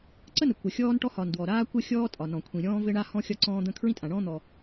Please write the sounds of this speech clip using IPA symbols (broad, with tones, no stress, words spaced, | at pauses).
ǀə˥nə˩ kʷə˩ xʲɔː˥nʈɔ˥ hɒ˩ndwɔ˩ ɾaː˥kʷə˥ xʲɔː˥tʼɒ˩ nɔ̃˩kʷʰĩ˩ɾʲɔ̃ː˥ vɘ˥ɳa˥hɔ̃˥ xʲɒ˥ǀɔ̃ː˥d̪ə̃˥ kʰɹĩ˥tʼã˩ɳɔ̃ː˥n̪ɔ˩